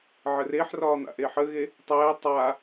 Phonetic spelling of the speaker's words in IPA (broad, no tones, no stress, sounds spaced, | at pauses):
ʕ ə r e ħ r ɒː n̪ a̰ ʔ e ħ ə ɣ e | tˤ ɛː tˤ aː